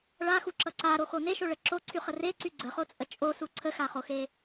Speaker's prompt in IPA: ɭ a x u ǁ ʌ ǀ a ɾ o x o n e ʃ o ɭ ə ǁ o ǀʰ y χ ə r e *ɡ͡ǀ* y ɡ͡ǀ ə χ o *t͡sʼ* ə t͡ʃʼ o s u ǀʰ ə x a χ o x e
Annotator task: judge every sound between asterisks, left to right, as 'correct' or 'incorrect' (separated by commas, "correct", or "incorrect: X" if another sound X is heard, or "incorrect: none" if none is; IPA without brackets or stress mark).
incorrect: ǀ, correct